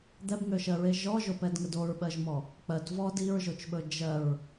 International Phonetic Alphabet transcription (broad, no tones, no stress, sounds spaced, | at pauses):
d̪ ɛ b ŋ ø ʃ ɜ ɹ e ʒ ɔ ʒ o p ɛ d ŋ ə d o ɹ ɓ ɜ ʒ m ɔ | k͡p ɜ d v ɔ d i ɹ ʒ o t͡ʃ ɓ ɵ d͡ʒ ɜ ɹ